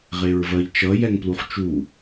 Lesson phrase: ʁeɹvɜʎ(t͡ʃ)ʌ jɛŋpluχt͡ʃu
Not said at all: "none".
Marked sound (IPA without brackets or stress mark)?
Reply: t͡ʃ